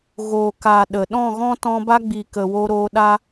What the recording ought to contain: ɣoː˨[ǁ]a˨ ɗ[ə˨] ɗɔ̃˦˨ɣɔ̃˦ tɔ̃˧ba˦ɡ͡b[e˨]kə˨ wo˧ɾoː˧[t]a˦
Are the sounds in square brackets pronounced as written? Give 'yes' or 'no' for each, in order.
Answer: no, yes, no, no

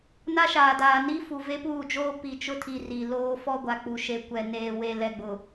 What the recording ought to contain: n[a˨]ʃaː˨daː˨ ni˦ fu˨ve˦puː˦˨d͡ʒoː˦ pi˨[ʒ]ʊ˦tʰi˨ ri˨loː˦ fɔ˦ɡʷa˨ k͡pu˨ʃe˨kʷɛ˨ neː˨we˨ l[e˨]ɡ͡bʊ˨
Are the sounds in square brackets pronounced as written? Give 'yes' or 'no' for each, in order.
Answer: no, no, no

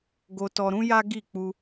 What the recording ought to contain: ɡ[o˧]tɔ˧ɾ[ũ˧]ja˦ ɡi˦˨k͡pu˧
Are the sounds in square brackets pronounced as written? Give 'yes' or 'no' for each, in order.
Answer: yes, no

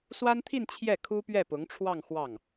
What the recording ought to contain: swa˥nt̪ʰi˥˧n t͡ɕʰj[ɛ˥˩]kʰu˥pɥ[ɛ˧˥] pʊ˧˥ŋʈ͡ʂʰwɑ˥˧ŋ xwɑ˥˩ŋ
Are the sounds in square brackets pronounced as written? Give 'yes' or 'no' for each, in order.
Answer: yes, no

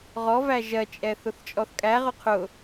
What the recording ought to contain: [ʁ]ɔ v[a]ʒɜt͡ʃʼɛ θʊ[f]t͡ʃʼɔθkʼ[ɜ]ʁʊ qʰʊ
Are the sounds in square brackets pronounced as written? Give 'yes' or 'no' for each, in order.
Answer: yes, no, no, no

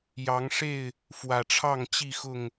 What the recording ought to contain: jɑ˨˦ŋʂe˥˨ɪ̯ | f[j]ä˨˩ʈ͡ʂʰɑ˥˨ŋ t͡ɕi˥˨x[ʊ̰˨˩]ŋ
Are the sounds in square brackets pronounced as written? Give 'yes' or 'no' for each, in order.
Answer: no, no

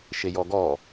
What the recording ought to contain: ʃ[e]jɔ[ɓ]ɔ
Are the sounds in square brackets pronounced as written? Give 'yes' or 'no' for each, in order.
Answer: yes, no

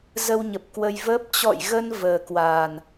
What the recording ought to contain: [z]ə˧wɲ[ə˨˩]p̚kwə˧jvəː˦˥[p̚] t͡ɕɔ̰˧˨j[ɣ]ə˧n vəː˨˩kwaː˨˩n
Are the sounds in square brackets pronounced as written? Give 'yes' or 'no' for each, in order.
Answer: yes, yes, yes, yes

